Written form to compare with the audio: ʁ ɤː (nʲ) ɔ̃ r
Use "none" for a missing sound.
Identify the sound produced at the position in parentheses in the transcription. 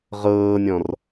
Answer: nʲ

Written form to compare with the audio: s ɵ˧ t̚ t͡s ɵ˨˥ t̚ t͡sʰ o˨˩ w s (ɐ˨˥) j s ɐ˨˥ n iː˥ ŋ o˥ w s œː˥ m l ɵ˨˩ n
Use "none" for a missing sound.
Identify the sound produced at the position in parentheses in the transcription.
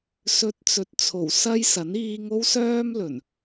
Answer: ɐ˥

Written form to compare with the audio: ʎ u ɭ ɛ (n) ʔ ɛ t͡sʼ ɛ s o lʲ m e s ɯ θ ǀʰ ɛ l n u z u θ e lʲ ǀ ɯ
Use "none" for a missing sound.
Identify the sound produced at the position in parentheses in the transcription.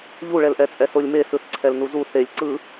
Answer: l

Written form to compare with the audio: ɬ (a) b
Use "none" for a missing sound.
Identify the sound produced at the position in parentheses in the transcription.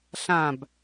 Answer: ã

